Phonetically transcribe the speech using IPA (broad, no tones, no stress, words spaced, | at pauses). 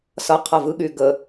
sʌqʰʌ vɯɠy ɡə